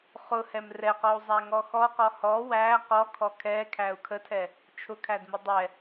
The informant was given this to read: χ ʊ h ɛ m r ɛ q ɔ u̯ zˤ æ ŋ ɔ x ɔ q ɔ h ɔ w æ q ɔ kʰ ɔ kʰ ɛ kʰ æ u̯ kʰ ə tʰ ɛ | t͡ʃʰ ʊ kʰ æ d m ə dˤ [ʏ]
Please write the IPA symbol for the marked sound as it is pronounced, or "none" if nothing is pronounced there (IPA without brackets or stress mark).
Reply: ɛ